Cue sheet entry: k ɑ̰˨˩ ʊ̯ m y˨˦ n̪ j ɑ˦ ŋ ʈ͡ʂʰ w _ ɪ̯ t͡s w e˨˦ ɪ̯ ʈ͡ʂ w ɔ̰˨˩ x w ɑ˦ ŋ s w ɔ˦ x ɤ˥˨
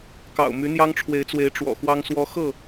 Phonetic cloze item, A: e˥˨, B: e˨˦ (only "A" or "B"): B